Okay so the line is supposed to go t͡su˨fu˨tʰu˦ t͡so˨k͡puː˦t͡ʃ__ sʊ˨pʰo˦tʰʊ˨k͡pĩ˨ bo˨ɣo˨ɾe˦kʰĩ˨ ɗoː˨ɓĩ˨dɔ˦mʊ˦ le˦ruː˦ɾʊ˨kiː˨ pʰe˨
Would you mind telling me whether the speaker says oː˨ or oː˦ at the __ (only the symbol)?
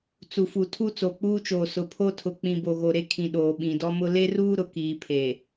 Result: oː˨